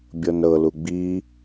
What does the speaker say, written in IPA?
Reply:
bʲɤnɾɤlu ɡ͡bi

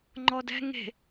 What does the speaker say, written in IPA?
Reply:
ŋ͡ǃɔdɛ̤ ŋe̤

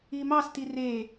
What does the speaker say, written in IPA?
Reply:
imɑs tire

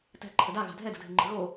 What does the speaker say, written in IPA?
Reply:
tɛ̤ǃʰə daɣa̤ dʱɛdə̤dʱɪŋ͡ǃə̤ ɣo

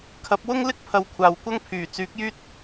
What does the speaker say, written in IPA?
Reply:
kʰɐ˨˥p̚wʊ˥ŋlɪ˥k̚pʰɐ˨w kʷʰaː˨wkʷɐ˥ŋpʰyː˨˩ t͡syː˨˥k̚jyː˥t̚

